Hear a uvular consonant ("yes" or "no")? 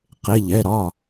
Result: yes